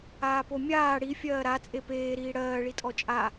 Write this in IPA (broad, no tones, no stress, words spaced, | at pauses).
aːpomʲaː ɽi fʲɜːɾa t͡sʼepeː ɾiːɽɜː ɭitʼɔt͡ʃʼa